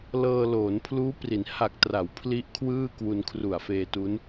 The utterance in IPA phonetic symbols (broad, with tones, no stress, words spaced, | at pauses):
lɤː˧loː˩˦npʰluː˦˥pri˩˦n ha˨˩k̚tra˩˦w pʰli˦˥ʔkʰwɯː˥˩ kwu˧nkʰru˨˩a̯feː˧ tu˦˥n